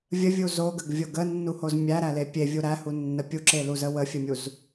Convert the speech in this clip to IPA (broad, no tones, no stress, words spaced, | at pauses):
vʲəvʲu zoɡəɡvʲo ɡənːuhoz mʲæɾæle pʲevʲu ɾæhunːə pʲuǁeluzə wəfʲəmʲuz